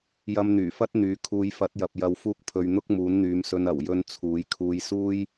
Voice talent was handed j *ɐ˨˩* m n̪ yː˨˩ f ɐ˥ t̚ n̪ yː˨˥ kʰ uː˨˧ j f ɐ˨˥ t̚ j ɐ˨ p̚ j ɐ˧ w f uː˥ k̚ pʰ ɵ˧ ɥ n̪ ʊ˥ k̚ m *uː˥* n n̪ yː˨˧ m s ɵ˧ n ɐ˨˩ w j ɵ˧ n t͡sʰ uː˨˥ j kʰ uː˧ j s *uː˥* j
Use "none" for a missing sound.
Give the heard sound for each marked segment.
ɐ˧, uː˨˥, uː˥

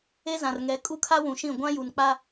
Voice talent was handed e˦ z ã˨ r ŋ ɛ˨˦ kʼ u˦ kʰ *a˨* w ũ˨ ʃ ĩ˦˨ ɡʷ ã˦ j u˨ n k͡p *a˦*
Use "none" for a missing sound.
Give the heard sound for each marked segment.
a˦, a˦

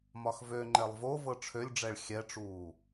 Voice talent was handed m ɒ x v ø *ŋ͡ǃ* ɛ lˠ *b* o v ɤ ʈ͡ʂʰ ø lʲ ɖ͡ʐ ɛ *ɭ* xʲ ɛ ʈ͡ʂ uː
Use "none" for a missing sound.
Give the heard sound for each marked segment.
ŋ͡ǃ, v, ɭ

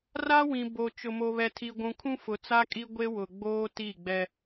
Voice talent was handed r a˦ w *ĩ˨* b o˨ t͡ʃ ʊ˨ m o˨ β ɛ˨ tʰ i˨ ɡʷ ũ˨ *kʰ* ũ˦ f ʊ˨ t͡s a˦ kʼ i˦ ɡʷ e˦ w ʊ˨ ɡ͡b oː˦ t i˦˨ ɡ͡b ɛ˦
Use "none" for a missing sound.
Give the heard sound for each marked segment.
ĩ˨, kʰ

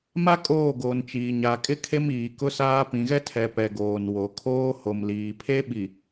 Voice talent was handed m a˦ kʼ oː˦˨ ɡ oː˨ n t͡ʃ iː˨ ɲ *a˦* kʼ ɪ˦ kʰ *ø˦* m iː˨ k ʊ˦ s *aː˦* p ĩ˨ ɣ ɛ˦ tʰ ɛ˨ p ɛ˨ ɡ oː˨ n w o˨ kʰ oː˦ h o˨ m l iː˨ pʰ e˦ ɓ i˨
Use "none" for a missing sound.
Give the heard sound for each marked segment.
a˨, e˦, aː˦

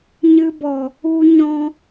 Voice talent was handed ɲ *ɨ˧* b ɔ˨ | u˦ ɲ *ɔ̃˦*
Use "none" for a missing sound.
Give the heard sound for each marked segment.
ɨ˧, ɔ̃˦

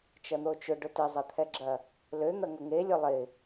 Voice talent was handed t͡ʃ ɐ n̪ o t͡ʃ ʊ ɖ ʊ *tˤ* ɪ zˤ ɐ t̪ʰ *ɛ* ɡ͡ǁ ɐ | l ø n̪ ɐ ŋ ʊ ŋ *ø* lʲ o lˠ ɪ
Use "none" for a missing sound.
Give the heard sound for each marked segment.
t, ɛ, e

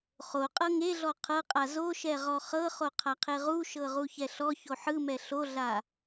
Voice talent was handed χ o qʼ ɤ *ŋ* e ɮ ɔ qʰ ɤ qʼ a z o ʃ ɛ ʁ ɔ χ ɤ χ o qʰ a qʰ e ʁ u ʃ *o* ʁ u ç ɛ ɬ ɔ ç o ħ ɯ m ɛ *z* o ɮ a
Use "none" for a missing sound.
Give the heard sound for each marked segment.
ŋ, ɤ, ɬ

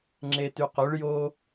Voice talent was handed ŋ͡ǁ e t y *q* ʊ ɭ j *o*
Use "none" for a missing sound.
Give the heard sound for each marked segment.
q, o

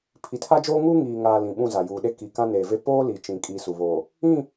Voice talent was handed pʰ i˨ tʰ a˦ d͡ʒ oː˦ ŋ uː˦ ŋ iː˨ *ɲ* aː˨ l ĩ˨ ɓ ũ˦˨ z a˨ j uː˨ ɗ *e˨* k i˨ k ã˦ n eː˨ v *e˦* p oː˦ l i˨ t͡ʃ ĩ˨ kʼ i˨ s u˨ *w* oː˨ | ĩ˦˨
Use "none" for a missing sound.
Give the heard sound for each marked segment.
ŋ, e˦, e˦, β

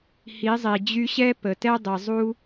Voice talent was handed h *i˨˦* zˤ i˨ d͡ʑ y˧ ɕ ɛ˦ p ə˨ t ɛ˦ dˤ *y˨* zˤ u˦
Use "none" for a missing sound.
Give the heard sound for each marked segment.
i˨˦, i˨

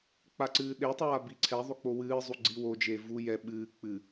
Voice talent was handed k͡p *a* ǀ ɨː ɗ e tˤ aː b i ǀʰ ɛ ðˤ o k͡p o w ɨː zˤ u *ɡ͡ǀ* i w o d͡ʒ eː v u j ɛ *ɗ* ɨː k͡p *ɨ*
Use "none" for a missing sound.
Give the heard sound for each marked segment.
a, ɡ͡ǀ, ɓ, ɨ

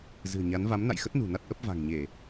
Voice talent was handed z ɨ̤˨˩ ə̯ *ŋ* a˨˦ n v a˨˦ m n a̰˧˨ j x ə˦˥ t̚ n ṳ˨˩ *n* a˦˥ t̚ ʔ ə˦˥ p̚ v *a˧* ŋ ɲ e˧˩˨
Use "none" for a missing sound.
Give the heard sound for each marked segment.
ɲ, n, a̤˨˩

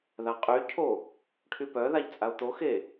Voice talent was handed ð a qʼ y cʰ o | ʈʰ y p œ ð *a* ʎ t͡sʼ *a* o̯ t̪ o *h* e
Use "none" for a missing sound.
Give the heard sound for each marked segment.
a, a, x

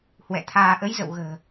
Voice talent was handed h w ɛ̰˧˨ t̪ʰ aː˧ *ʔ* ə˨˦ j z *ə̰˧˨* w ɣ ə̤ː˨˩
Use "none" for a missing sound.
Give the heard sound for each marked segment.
ʔ, ə̰˧˨

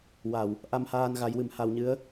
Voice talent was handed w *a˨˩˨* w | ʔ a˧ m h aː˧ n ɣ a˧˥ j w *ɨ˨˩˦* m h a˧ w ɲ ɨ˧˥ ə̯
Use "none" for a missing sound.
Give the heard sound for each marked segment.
a˨˩˨, ɨ˨˩˦

